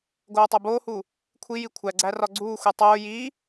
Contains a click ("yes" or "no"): yes